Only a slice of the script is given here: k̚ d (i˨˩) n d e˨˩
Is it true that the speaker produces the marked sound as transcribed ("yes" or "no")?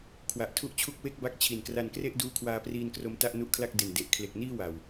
no